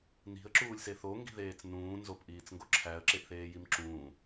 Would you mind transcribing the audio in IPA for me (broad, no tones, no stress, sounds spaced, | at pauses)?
n i̤ ə̯ ǁ uː lʲ s e θ o ŋ ɡ i̤ ð eː t͡s n ũː n z o p ʔ iː t͡s ŋ ɡ o ǁʰ æ ə̯ ǁ e ʔ θ eː j i m ǁ ũː